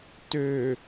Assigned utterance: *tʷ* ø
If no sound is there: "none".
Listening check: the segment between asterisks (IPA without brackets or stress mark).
t